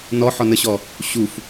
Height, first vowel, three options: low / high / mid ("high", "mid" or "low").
mid